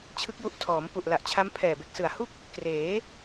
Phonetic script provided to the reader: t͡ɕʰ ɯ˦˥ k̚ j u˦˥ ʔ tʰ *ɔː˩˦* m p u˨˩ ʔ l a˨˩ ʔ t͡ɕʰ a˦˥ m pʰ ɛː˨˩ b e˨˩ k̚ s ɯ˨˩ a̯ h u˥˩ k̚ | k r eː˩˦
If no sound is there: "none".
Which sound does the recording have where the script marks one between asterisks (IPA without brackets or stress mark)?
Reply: ɔː˩˦